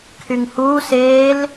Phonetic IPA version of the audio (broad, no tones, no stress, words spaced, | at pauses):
kʰyŋhuː seːl